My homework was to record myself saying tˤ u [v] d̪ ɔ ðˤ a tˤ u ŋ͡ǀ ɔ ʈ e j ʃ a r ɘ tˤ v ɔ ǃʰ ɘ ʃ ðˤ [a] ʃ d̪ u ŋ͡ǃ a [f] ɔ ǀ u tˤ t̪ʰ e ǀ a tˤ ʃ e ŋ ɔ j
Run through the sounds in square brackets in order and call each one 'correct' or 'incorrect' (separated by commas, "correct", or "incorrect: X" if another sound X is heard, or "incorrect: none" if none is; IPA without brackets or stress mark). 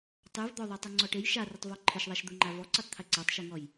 correct, correct, incorrect: v